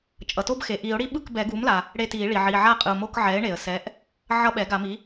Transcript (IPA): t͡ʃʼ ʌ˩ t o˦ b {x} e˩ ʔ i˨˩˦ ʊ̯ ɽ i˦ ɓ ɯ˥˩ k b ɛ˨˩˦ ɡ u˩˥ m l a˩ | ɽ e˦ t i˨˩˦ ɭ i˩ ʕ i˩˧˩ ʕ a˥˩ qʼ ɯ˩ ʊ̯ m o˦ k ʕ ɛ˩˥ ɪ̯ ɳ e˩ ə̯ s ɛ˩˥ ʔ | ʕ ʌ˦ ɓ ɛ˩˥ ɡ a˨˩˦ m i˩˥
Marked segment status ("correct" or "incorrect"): correct